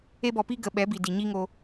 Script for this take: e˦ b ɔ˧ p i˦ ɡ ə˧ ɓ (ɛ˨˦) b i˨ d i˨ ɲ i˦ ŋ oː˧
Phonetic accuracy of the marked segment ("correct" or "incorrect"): correct